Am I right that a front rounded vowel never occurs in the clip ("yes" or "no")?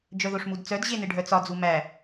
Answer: no